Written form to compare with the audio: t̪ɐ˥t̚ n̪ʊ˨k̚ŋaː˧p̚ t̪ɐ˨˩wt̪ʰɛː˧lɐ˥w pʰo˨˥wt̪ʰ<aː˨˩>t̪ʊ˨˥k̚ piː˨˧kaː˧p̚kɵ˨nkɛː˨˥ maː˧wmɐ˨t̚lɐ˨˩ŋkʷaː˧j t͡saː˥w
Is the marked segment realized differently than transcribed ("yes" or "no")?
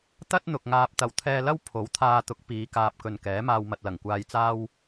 yes